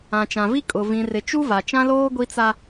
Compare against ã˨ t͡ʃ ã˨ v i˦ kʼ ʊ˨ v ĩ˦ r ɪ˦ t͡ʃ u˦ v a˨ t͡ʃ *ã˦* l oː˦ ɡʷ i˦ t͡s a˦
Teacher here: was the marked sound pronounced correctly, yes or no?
yes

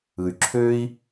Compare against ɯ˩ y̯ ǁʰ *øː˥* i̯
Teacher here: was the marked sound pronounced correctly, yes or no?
yes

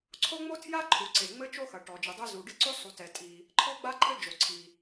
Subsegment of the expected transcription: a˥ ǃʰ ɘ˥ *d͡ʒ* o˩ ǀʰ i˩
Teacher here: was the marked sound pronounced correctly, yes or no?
yes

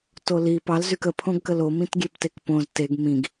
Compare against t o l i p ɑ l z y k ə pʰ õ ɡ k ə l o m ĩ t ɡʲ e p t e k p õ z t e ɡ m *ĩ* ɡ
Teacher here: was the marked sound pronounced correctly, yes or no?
yes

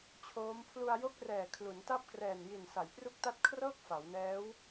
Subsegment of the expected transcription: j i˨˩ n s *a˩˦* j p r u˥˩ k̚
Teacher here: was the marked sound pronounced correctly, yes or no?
yes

